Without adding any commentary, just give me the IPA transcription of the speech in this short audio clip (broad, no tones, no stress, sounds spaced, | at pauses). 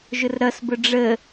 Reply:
ʒ ʊ r ɾ ʌ s b ʊ ɖ͡ʐ ə